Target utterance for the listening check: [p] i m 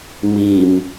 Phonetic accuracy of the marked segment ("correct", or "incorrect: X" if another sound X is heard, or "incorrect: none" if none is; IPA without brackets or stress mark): incorrect: m